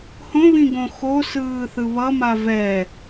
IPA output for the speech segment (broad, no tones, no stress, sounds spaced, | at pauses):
h õ β ĩ ɡ õ x o s ɯː θ ɯ β ʌ m a v ɛ